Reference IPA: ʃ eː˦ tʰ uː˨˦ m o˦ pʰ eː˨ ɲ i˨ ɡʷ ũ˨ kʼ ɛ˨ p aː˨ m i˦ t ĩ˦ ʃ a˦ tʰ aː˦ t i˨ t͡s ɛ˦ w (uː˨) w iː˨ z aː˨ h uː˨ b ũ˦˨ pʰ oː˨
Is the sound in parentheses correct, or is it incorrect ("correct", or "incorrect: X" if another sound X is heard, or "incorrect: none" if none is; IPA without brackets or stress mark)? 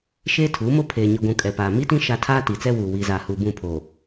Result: correct